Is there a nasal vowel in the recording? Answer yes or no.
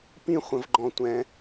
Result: yes